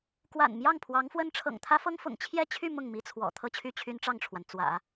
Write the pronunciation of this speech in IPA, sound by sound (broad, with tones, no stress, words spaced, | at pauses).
kwa̰˨˩n mjɑ˥˩ŋpʰwɑ˧˥ŋfwə˥n ʈ͡ʂʰɤ̰˨˩ŋt̪ʰä˥fɤ˥ŋfʊ̰˨˩ŋ t͡ɕʰjɛ˥˧t͡ɕʰy˥˧ mʊ˥˩ŋmi˥t͡sʰwɔ̰˨˩ t̪ʰɤ˥˧t͡ɕʰy˥˩ t͡ɕʰy˥nʈ͡ʂɑ˥˩ŋʈ͡ʂʰwa˩n t͡swä̰˨˩˦